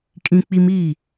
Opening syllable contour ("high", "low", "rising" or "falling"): high